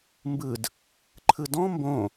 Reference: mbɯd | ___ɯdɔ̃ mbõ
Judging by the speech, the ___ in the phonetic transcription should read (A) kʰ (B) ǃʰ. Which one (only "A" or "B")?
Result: B